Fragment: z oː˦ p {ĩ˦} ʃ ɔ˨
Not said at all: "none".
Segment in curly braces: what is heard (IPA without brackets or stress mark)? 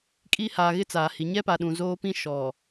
ĩ˦